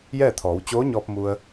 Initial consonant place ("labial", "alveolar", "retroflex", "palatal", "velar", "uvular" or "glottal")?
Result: palatal